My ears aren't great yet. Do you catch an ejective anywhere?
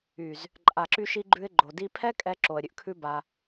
yes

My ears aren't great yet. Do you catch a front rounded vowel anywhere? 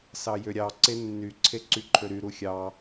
yes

